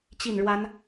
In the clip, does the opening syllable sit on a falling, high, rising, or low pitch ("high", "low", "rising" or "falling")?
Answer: falling